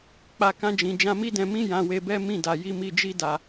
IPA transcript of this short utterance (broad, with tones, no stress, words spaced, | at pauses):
k͡pa˧ kã˧d͡ʒĩ˨ d͡ʒã˧mi˦dɛ̃˧ mĩ˦ jã˧we˧bɛ˦ mĩ˦˨da˨ ji˨˦mi˧d͡ʒi˦ da˧